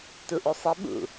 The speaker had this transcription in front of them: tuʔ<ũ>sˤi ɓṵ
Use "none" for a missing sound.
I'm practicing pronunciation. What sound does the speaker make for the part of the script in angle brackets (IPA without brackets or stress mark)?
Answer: u